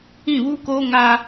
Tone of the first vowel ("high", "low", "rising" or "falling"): falling